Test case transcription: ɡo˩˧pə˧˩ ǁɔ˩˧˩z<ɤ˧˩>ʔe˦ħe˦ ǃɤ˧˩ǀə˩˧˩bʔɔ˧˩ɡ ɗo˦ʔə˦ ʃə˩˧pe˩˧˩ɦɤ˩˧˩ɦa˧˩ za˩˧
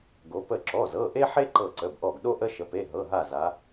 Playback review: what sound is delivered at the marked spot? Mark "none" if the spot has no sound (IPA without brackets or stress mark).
ɤ˩˧˩